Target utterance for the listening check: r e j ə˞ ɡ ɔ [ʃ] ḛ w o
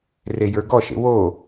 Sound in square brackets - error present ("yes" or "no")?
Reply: no